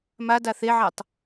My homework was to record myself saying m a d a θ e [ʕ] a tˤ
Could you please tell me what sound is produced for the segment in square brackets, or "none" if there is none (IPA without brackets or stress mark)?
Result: ʕ